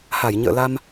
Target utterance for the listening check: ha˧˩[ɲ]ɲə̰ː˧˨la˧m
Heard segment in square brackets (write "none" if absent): j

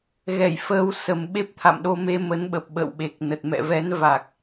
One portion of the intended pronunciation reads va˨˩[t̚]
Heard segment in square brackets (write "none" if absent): k̚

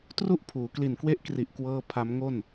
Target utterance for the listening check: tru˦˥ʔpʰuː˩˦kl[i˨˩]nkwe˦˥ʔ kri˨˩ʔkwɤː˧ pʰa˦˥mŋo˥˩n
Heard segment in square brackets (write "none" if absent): i˨˩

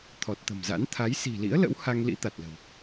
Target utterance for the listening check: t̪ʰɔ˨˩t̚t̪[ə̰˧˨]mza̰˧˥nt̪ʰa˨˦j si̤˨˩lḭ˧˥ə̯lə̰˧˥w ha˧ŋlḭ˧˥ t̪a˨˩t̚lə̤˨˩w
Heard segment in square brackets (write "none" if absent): ə̤˨˩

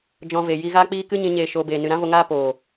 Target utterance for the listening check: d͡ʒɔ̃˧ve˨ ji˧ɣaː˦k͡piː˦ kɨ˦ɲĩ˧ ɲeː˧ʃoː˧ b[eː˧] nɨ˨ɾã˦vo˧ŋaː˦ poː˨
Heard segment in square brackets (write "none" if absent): eː˨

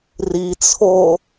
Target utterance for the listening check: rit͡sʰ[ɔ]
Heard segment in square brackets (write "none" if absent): o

